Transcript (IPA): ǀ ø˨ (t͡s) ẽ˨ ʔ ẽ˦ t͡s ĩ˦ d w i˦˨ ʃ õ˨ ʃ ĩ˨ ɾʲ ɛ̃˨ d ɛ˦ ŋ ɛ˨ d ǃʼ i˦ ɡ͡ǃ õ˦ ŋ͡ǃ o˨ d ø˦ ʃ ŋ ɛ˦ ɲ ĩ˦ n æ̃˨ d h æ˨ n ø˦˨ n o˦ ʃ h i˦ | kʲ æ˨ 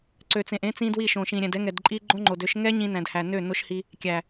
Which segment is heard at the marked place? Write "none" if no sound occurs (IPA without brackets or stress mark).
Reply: t͡s